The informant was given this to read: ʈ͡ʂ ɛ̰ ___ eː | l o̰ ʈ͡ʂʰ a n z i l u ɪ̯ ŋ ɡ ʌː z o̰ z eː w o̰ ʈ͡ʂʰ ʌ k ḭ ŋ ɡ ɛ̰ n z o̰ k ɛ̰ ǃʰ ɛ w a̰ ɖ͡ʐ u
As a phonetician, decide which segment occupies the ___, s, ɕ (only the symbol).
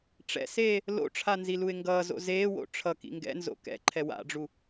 s